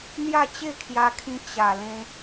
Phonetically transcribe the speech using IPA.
n̪ j a˥˧ t͡ɕ e˥˧ kʰ j a˧ kʰ ĩ˧ t͡ɕ a˨˩ l ẽ˧

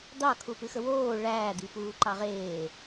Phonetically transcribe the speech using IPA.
d̪ ɑ kʰ u p ɨ x ə w oː ɭ æː d̪ i p uː ǃ ɑ ʁ eː

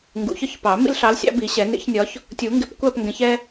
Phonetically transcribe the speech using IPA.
ŋ ɡ ṵ˨˩˦ ç ɒ˦˨ ç p ɑ˨˩˦ m ḭ˦ l ɬ ɑ˨˦ l sʲ ɑ̰˨˦ b i˨˩˦ ɕ ɛ˨˩˦ n ḭ˨˩˦ ç nʲ ɒ˨˦ ç | tʲ u˨˩˦ ŋ ɡ ɪ˨˦ p kʷ æ˦˨ p ŋ ɡ ɛ̃˨˦ ç ɛ˦

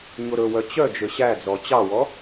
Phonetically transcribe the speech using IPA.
ɲ o ɾ ɵ w œ t͡ɕ œ d͡ʒ ø ɕ æ d͡z ɔ t͡ɕ ɑ w ɔ

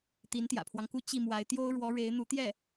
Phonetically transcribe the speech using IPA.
t̪ i˧˥ n t̪ j ä̰˨˩ pʰ w ɑ˦ ŋ k u˥ t͡ɕ i˥˩ m w a˧˥ ɪ̯ t̪ j o˥ ʊ̯ ɻ w ɔ˧˥ ɻ e˧˥ ɪ̯ n̪ u˧˥ t̪ j ɛ˥˩

